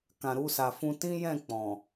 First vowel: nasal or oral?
nasal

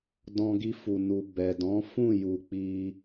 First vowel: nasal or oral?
nasal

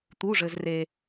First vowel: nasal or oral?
oral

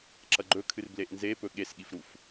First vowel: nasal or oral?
oral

